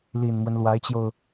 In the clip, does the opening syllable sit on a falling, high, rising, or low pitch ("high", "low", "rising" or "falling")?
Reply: low